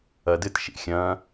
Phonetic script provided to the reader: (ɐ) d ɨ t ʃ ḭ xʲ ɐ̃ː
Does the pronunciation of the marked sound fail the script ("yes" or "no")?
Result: no